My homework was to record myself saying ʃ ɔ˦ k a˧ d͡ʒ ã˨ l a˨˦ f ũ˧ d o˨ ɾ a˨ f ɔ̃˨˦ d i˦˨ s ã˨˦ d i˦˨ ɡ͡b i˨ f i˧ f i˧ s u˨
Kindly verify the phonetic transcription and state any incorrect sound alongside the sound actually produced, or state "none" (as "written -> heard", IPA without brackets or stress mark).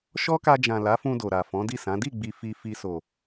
u˨ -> o˨